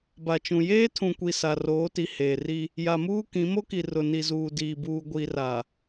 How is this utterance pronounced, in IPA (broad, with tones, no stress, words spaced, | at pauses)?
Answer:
ba˨t͡ʃũ˨ jeː˦tʰũ˨kʷi˨ sa˨roː˨˦ti˨ heː˨ri˦ | ja˨muː˦kĩ˨˦ mo˦ki˨ rʊ˨ ni˨zuː˨diː˨buː˨ ɡʷi˨ra˨